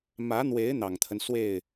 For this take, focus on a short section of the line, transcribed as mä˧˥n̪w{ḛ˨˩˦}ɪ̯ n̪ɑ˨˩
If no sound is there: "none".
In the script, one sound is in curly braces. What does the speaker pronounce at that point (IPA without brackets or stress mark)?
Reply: e˧˥